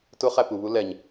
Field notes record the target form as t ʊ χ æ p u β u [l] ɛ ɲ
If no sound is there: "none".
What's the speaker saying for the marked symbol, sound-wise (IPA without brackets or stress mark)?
l